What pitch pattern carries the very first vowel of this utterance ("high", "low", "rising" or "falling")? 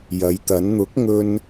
rising